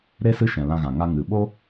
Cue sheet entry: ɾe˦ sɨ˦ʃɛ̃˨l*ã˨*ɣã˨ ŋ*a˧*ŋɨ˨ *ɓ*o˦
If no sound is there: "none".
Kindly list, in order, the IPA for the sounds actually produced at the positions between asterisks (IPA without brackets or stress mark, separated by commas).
ã˧, a˧, ɓ